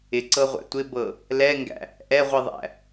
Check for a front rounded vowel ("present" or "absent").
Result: absent